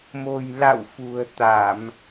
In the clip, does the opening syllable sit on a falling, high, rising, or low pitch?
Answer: low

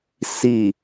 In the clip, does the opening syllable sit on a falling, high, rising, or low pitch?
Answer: low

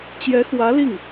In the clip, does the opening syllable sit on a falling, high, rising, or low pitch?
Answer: rising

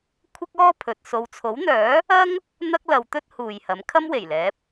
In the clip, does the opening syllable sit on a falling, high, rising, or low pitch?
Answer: high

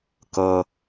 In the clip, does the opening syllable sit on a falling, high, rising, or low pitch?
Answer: low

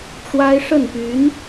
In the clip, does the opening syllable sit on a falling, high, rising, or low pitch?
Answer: high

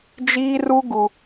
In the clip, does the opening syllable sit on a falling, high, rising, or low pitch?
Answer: high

